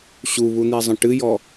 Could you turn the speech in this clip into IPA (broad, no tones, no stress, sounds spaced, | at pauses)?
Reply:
ɕ u β u n̪ i zˤ ə̃ ʈ ɨ j ɔ